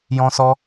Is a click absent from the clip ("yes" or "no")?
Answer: yes